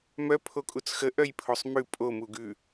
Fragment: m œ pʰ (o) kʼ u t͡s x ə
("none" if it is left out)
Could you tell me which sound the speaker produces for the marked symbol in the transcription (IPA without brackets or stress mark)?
o